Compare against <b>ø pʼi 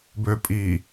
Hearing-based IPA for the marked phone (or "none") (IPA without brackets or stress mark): b